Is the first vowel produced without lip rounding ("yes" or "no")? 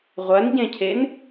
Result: yes